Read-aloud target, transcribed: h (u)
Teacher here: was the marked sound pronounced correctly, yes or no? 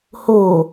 no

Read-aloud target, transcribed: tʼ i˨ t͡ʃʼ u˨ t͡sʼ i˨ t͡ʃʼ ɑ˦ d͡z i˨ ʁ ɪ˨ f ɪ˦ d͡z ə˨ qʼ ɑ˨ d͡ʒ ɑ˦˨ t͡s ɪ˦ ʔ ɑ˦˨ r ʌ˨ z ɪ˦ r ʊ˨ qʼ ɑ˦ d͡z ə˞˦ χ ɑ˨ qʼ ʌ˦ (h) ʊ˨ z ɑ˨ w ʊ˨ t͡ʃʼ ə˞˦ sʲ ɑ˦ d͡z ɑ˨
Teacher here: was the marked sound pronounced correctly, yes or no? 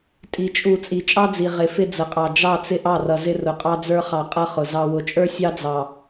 no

